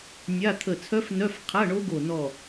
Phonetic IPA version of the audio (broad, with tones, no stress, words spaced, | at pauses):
nʲa˧˥˧ t̪ʰə˧˩t͡sʰœ˦˥f nœ˧˥˧fqʰa˧˥˧ɳo˦˥ɡo˧˩ nɔ˧˩